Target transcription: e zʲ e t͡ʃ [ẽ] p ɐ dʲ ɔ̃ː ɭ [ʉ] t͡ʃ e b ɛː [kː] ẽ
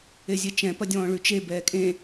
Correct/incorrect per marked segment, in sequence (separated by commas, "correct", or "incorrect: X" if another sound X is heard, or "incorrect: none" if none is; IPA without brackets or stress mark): incorrect: ɛ̃, correct, incorrect: kʼ